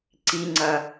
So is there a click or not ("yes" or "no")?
yes